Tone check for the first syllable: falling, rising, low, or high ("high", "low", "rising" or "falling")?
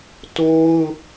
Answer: high